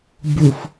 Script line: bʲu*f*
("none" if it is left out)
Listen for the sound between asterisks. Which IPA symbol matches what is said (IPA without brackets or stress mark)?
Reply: f